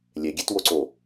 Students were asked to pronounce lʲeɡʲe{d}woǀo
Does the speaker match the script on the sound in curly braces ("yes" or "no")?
no